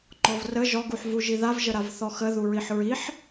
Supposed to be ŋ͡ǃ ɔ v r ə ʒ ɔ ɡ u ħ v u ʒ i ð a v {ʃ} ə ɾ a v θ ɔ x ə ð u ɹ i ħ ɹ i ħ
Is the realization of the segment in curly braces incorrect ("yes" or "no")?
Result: yes